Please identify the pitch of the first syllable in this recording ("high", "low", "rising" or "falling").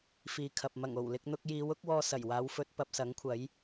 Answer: low